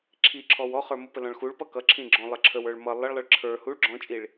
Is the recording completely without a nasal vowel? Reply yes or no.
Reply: no